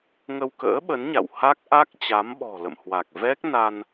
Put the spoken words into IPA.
ŋə˧wkə̰ː˧˥ɓə˨˦nɲa̰˧˨w ha˦˥k̚ʔa˦˥k̚ t͡ɕa˨˦mɓɔ̤˨˩lə̰˧˨m hwa˨˩k̚ vɛ˦˥k̚ na˧n

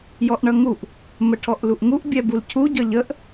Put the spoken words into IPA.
jɔʔɳʌŋuʔ | məʈʰɔʔluʔŋuʔ bʲɛbulcʰu ɟʌʎəʔ

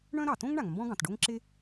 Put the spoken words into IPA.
ɳœ̃˥ɾɑ˩ tõ˥ŋɳa˩ŋ mbɔ̃˥ɡɑ̃˩tɖo˥ŋ ǁe˥

